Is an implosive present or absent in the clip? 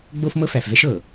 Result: absent